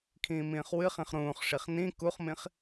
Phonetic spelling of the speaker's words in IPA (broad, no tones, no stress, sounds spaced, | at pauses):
kʰ ĩː m ĩː χ w ɨ χ ĩ χ ɾ ũː χ ʂ i χ n ĩ k u χ m ĩ χ